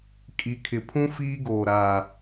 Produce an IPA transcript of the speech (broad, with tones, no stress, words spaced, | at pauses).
kʼi˨kʰɪ˨pʰũ˦ fiː˦ɡoː˨ɾaː˨